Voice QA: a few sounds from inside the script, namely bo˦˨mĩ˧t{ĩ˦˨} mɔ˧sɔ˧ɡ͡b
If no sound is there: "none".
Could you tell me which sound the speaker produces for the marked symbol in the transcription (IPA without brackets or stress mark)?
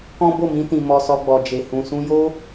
ĩ˨